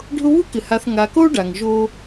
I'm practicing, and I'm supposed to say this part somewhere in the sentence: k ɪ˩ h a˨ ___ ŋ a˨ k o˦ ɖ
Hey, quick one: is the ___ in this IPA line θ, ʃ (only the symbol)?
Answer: θ